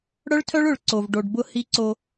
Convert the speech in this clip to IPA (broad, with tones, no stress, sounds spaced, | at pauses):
ɽ œ˦ ɭ tʰ œ˦ ɭ ʊ˨ ɭ ǀ o˨ v ɖ o˨ ɖ b ʊ˦˨ h i˦ ǀ o˦